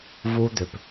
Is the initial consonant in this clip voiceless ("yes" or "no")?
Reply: no